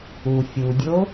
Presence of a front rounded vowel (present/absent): absent